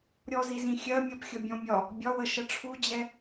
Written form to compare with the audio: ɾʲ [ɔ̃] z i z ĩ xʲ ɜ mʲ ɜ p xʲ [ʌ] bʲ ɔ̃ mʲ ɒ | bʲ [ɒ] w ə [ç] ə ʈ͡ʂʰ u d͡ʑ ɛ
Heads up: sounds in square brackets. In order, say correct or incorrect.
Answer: incorrect: ɔ, correct, correct, incorrect: ʃ

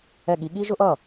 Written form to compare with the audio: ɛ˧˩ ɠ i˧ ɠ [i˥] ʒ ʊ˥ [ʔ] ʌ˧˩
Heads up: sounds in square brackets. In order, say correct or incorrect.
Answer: correct, correct

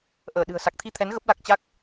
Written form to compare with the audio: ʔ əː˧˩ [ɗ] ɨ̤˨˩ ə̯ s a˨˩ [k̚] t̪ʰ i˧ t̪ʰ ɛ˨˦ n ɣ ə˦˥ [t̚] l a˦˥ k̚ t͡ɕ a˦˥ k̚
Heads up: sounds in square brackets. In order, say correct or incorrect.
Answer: correct, correct, incorrect: p̚

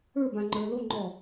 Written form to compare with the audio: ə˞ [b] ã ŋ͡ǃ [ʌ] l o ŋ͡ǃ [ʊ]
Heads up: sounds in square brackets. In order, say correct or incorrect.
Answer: correct, incorrect: ə˞, incorrect: ɔ

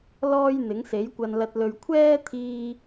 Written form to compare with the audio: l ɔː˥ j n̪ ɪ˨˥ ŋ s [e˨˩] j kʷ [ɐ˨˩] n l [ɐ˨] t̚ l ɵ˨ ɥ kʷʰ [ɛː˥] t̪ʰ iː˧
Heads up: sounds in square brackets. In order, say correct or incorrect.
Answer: incorrect: e˨˥, incorrect: ɐ˨, correct, correct

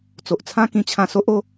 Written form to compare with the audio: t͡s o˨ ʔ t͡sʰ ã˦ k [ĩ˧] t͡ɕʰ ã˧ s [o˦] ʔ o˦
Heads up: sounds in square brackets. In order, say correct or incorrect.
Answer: correct, correct

